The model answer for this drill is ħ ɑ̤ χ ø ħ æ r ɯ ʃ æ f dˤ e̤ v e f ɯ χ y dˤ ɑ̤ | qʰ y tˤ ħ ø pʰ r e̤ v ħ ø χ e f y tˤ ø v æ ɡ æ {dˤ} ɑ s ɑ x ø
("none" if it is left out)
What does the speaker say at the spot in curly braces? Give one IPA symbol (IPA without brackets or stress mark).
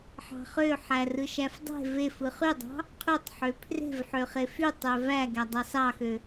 dˤ